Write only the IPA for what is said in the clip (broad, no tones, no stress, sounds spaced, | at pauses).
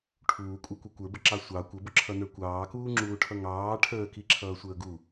ʈʰ uː kʷʼ ə˞ kʷ ʌ kʷ ə˞ b ə ǁ ɑ sʷ ɑ kʷ ə b ʊ ǁʰ ʌ n ə˞ kʷ ɑː k uː ŋ͡ǁ uː ʈʰ ʌ ŋ ɑː ʈʰ əː k i ǁʰ ʌː sʷ əː ɡ u